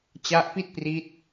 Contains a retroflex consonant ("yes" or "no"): no